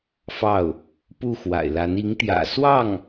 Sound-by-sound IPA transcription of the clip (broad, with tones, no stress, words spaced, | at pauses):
fɑ˥˩ʊ̯ | pu˥˩xwa̰˨˩ɪ̯la˧˥n i˧˥ŋt̪jä̰˨˩swɑ˥˩ŋ